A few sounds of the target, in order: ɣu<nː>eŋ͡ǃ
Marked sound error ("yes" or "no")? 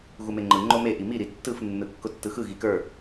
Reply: yes